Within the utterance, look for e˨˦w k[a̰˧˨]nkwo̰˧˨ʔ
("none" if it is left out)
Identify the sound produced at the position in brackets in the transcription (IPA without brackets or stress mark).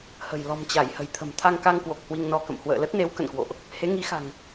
ə̰˧˨